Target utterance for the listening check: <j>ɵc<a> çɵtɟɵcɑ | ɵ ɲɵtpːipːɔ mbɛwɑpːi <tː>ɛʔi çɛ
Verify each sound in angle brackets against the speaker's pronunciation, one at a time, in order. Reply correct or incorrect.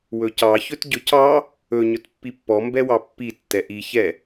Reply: incorrect, incorrect, correct

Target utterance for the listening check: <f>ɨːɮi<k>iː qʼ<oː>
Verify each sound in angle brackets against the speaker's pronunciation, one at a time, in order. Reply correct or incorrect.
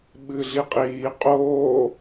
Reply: incorrect, incorrect, correct

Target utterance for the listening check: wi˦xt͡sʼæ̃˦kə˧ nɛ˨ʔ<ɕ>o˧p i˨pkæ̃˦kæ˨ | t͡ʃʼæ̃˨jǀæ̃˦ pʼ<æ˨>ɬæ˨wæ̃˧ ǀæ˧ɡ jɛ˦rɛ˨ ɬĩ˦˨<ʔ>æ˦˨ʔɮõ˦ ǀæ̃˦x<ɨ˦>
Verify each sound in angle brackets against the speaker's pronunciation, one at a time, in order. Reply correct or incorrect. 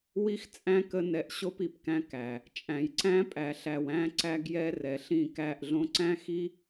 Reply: correct, correct, incorrect, incorrect

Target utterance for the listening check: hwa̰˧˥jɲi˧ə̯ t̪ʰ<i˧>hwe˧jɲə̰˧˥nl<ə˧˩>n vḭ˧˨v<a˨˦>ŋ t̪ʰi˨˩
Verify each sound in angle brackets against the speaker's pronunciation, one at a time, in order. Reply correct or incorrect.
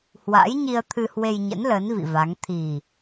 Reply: incorrect, incorrect, correct

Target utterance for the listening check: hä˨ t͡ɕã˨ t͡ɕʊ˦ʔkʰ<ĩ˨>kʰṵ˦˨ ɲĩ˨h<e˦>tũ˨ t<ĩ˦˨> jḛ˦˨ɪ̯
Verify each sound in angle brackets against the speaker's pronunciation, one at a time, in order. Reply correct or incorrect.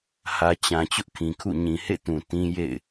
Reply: correct, incorrect, incorrect

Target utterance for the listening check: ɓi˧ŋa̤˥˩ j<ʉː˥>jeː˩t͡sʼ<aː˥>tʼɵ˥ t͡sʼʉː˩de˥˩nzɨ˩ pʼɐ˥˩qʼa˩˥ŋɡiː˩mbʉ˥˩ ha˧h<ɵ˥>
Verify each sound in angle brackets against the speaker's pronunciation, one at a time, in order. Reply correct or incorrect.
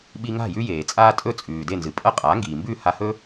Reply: incorrect, correct, correct

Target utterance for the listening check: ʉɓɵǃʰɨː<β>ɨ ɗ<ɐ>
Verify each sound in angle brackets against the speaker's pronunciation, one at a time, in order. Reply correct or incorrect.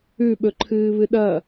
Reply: correct, correct

